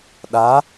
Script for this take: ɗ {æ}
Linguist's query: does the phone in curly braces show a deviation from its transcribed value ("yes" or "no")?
yes